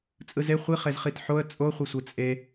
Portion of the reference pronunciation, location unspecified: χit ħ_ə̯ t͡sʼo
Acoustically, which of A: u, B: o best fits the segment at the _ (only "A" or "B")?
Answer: B